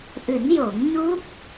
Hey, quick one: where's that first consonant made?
throat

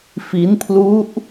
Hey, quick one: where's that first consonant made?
lips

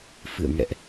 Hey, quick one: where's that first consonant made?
lips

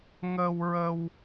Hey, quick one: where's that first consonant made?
velum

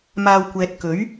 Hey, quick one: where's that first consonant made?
lips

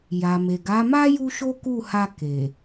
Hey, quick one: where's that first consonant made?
palate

